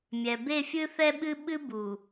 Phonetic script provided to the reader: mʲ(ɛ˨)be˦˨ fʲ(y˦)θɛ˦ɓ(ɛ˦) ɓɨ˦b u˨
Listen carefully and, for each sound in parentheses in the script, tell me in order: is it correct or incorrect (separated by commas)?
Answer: correct, incorrect, incorrect